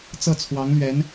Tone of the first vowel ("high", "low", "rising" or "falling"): falling